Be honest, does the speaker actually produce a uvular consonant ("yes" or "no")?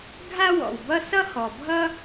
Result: no